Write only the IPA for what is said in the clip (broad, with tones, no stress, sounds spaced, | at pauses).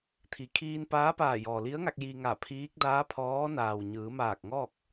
t̪ʰ i˩˧ kʰ iː˧ n p aː˧˥ p aː˧˩ j ɔː˩ l i˧˥ ə̯ ŋ a˧ k̚ j i˧ ŋ a˧˩ pʰ iː˧˥ k̚ d aː˧˥ pʰ ɔː˧˥ n aː˩ w ɲ ɯː˩˧ m aː˧˩ k̚ ŋ ɔː˥˨ k̚